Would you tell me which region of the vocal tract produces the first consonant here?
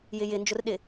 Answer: palate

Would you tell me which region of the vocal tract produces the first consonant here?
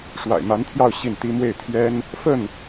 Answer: retroflex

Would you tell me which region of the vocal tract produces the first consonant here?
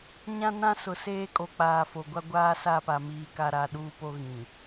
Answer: palate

